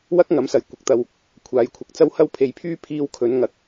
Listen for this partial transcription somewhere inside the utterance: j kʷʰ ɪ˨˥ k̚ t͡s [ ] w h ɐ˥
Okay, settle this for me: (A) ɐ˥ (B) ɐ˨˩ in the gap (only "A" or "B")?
A